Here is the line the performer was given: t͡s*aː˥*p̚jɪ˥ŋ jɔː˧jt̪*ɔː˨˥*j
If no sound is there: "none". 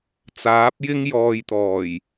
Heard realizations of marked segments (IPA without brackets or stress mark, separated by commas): aː˨˥, ɔː˨˩